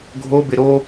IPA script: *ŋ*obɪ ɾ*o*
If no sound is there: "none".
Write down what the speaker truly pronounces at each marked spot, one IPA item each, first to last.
ɡʱ, o

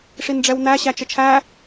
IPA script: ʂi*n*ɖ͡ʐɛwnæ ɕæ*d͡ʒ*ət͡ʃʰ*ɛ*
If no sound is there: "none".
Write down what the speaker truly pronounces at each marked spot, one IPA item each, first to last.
n, t͡ʃ, æ

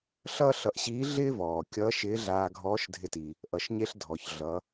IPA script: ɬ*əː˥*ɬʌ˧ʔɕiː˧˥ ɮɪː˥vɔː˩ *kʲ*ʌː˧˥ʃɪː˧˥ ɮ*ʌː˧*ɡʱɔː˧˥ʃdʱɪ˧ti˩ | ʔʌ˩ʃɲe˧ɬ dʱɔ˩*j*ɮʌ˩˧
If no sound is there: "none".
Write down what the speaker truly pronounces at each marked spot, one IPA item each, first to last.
ʌː˥, kʲ, aː˧, ç

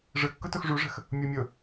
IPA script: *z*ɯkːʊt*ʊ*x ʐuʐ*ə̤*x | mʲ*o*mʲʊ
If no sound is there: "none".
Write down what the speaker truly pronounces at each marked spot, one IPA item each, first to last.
ʐ, ʊ, ə̤, o

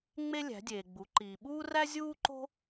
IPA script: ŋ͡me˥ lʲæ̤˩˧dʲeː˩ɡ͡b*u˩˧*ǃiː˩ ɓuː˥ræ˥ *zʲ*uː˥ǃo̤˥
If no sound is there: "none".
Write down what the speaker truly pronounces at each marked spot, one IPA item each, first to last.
u˩˧, zʲ

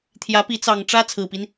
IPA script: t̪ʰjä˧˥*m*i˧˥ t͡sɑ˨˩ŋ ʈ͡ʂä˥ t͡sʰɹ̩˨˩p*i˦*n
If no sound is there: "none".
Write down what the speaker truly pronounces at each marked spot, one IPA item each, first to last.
p, i˦

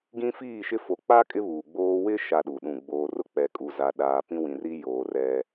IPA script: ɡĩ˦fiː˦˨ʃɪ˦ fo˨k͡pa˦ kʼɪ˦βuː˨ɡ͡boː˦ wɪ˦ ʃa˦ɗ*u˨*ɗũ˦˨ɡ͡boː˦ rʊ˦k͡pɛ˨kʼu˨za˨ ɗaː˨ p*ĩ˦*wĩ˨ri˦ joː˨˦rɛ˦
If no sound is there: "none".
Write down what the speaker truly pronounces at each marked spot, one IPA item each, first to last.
u˨, ĩ˦

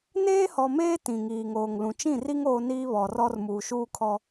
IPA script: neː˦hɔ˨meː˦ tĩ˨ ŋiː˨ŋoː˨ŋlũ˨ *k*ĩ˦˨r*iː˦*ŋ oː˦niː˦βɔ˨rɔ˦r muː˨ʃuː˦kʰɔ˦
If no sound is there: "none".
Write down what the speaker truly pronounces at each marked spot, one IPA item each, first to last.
t͡ʃ, i˦

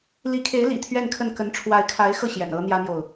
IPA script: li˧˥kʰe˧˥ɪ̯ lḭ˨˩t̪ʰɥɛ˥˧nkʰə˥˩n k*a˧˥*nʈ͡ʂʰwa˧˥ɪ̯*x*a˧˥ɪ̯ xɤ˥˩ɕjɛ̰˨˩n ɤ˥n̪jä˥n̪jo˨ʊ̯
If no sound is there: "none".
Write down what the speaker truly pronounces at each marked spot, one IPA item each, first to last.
ə˧˥, kʰ

